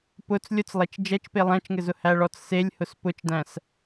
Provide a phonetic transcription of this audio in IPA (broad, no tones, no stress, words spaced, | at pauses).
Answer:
pʊt͡s lʲʊt͡slˠet͡ʃ d͡ʒɛt͡ʃpe lˠæ̃t͡ʃŋɘzʊ hæɭɔt͡sselʲ hʊspʊt͡ʃdæ̃s